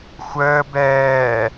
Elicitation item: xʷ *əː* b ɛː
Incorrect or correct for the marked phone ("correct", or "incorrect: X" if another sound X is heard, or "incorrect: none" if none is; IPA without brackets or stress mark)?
correct